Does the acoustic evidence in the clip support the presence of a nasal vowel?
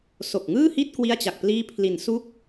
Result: no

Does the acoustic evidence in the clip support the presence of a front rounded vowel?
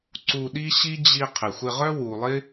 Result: yes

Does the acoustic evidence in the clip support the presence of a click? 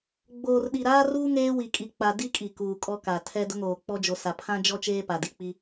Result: no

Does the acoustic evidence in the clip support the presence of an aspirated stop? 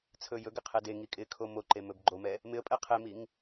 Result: yes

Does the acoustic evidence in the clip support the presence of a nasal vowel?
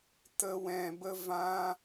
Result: yes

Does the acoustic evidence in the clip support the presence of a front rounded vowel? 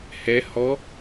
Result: no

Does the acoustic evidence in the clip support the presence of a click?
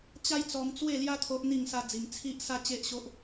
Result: no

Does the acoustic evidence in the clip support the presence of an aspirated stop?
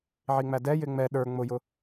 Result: no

